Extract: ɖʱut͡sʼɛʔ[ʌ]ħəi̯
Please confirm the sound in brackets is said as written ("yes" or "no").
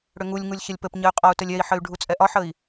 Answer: no